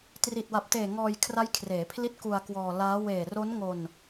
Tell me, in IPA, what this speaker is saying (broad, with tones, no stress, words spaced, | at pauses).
tri˨˩t̚wa˨˩p̚teː˨˩ ŋɔː˧j kʰra˦˥jkʰreː˩˦pʰli˦˥t̚ ku˧a̯kwɔː˧laː˦˥ weː˨˩ro˦˥nŋo˧n